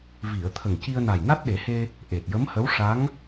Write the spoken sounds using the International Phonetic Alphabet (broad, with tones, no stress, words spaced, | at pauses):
vi˨˩˨ə̯ t̪ʰə˨˩ŋci˧ə̯na˨˩j na˦˥t̚ɗe˨˩˦he˧ | ʔe˨˩t̚jə˧˥mhə˧˥w ʂa˧˥ŋ